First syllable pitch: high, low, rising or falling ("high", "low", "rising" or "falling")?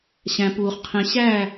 low